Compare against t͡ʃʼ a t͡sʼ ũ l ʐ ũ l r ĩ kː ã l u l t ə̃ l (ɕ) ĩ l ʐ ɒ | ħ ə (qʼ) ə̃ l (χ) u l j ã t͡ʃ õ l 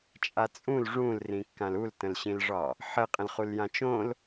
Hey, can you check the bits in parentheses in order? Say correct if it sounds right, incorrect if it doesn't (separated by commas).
correct, correct, correct